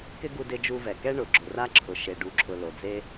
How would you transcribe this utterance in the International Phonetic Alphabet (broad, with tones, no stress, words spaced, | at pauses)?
kɪ˦ɡu˧dɪ˧d͡ʒu˧ vɛ˨kɛ˦ ɳʊ˨ ɡ͡ǁʊ˨ra˦ǁʰʊ˨ ʃe˨ɖu˨ǁʰʊ˨ lo˨d͡ze˦